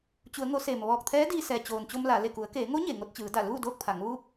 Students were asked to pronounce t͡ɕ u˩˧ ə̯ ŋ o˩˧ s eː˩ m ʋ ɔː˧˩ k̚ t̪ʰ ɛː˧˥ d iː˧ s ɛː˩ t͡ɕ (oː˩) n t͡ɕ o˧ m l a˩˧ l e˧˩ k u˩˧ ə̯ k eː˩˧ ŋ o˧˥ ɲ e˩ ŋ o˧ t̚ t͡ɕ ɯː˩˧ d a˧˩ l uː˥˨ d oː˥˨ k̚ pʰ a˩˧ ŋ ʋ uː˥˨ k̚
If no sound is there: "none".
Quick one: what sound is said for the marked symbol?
oː˩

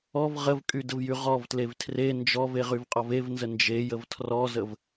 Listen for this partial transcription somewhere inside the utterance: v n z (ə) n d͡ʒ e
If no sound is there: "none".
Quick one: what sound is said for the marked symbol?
ə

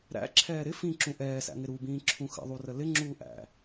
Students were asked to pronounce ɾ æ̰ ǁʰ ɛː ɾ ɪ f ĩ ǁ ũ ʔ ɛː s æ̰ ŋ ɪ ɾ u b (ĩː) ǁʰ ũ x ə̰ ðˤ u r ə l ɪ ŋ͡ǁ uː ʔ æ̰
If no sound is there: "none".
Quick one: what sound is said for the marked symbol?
ĩː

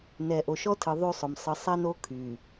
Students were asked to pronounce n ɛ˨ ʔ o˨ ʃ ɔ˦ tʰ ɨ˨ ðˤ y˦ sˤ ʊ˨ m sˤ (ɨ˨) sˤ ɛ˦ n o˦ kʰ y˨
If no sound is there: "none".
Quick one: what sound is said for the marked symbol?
ɨ˨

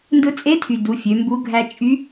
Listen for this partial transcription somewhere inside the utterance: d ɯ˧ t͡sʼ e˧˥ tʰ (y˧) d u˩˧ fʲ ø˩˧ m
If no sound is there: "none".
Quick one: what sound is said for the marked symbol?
y˩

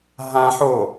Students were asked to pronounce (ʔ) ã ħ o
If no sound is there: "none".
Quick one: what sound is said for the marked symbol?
ɦ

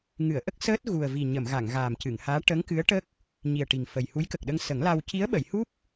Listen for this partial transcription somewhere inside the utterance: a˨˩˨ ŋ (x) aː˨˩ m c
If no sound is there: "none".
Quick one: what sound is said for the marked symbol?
ɣ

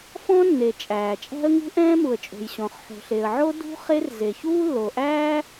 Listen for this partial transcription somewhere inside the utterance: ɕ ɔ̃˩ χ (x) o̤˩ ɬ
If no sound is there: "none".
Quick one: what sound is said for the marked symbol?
ħ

